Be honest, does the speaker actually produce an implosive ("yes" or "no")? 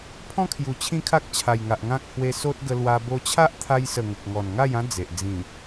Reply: no